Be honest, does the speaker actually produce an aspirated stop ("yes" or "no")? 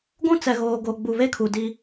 yes